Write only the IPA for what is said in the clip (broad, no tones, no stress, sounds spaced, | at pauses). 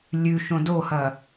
lʲ ʉ ʃ õ d o h ɐ